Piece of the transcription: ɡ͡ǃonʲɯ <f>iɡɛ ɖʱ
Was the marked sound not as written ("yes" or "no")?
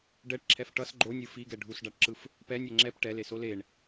no